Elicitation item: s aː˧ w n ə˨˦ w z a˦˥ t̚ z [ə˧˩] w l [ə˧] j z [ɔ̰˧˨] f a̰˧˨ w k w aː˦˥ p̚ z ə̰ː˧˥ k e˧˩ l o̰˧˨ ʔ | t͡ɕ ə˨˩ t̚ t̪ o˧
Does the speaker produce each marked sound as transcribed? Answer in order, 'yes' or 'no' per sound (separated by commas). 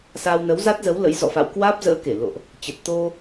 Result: no, no, yes